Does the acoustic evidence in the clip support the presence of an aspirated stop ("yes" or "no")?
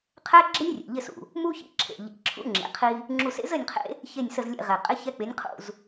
yes